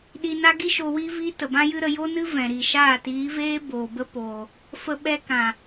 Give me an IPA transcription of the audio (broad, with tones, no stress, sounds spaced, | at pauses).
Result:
ɗ i˧ n a˦ ɡ i˦ ʃ o˧ w iː˦ v iː˦ t ə˨ b ã˦ j ɨ˦ ɾ ə˧ j o˦ n ɨ˦ v ɛ̃˨ ɾ i˨ ʃ aː˦˨ t iː˨˦ v eː˦ b oː˨ b ə˦ p oː˨ | f ə˧ ɓ ɛ˧ k ã˨